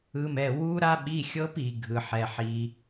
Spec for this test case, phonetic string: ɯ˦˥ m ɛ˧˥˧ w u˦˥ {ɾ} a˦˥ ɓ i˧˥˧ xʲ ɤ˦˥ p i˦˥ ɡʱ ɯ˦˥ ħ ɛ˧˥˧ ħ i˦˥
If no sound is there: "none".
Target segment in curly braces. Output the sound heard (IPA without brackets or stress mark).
ɾ